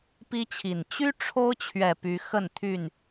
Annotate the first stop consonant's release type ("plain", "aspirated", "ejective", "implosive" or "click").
plain